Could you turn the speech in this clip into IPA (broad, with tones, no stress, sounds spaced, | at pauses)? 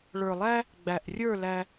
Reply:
ɭ ə˞˨ lˠ æ˦ | ɡ͡b æ˨ ʔ rʲ ə˞˦˨ l æ˧